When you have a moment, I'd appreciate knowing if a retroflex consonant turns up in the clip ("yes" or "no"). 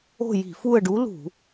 yes